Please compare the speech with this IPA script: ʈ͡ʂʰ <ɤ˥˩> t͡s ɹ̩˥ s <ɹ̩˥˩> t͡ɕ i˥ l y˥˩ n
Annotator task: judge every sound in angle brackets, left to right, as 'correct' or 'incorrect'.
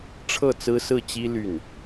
correct, correct

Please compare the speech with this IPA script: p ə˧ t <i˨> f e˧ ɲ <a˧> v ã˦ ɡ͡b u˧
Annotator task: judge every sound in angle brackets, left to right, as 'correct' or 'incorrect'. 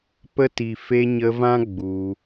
correct, incorrect: ə˧

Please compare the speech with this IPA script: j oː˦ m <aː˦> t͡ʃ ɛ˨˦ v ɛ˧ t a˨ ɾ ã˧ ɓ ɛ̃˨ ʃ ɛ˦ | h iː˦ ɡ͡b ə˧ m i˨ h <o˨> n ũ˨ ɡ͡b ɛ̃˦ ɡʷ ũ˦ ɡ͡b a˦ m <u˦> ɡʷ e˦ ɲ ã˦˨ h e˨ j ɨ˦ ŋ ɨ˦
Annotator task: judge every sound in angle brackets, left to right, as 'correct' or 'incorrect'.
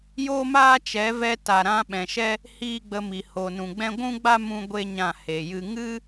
correct, correct, incorrect: ũ˦

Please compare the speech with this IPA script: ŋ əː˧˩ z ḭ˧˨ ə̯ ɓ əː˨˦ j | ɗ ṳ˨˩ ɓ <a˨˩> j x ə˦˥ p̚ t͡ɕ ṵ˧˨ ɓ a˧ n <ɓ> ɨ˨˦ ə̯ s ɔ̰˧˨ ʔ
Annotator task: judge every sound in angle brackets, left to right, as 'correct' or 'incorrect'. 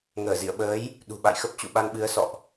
incorrect: a̰˧˨, correct

